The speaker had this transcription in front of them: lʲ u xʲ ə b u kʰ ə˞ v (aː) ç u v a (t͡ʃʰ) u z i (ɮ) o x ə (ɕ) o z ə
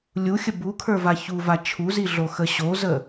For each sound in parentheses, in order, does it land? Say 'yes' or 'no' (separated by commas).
no, yes, yes, yes